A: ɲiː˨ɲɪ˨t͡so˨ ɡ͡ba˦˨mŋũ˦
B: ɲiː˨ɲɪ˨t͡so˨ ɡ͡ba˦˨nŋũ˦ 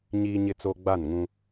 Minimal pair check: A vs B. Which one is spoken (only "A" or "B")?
B